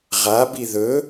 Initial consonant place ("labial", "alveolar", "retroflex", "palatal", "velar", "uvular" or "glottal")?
uvular